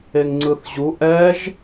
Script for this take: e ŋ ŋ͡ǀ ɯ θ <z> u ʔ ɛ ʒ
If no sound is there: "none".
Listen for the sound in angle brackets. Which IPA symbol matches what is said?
ʑ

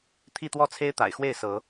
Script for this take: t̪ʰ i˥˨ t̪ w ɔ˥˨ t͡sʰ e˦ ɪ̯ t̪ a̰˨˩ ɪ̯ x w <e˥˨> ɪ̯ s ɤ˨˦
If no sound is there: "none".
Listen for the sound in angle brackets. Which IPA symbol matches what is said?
e˥˨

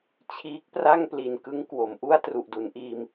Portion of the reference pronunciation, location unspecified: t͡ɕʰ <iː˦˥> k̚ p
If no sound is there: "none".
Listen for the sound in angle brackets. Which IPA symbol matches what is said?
iː˦˥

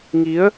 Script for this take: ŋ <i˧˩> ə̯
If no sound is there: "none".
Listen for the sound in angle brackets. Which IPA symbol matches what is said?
i˨˦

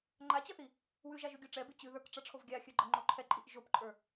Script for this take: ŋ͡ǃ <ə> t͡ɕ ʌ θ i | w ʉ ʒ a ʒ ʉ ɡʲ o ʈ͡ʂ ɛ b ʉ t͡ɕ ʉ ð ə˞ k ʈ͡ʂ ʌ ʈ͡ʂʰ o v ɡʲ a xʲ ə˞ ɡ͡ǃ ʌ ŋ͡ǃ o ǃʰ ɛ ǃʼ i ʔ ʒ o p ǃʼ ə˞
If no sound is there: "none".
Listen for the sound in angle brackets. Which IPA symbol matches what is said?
a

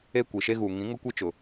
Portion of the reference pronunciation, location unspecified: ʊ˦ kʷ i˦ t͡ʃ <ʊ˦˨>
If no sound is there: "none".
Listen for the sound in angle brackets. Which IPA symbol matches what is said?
ʊ˨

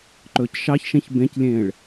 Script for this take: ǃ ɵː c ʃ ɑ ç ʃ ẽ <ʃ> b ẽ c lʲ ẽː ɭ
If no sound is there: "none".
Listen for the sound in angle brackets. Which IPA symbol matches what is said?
ç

